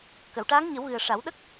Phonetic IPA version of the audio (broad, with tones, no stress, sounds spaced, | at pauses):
k ə˨˩˨ w ʈ aː˧˥ ŋ ɲ ə˨˩˦ w ɣ ɨ˨˩ ə̯ ʂ a˨˩˦ w ɗ ə˦˥ k̚